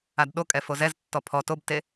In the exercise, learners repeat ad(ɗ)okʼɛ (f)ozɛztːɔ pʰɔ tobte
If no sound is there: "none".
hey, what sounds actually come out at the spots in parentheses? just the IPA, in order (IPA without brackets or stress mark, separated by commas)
ɗ, f